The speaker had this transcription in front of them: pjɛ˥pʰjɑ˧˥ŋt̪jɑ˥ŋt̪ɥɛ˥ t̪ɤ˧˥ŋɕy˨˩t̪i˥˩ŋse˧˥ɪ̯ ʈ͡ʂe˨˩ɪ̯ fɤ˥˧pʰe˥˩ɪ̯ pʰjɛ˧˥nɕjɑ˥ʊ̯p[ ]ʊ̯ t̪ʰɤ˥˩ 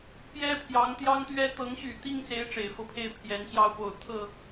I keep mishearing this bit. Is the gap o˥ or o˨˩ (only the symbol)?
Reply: o˨˩